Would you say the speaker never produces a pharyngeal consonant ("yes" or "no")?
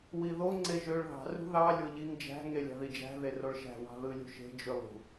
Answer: yes